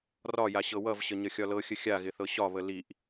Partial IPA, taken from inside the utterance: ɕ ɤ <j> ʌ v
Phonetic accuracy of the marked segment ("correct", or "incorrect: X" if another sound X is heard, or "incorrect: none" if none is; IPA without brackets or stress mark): incorrect: w